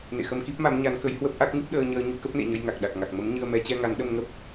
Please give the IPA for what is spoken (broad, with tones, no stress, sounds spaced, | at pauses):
n ḛ˧˨ x ə˧ m k i˦˥ p̚ m a˨˦ m ɲ a˨˦ n k ə˨˦ j h w ə˦˥ p̚ ʔ a˦˥ k̚ ŋ ɨ˦˥ p̚ ɗ əː˧ ɲ əː˧ ɲ u˧ k ə˦˥ p̚ n ḛ˧˨ ɲ ə˧ j ŋ a˨˩ k̚ ɗ a˨˩ k̚ ŋ a˨˩ k̚ m ə˨˦ m ɲ ɨ˧ ə̯ m ɛ˨˦ t͡ɕ ɛ˧ ŋ a˨˦ n ɗ ə˧ m ŋ ə˦˥ p̚